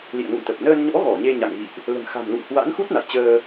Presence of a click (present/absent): absent